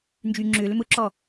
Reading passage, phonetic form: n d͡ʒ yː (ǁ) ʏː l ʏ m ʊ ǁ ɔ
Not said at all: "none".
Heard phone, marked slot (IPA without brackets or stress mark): ŋ͡ǁ